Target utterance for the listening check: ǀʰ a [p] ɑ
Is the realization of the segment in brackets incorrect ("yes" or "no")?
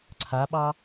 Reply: yes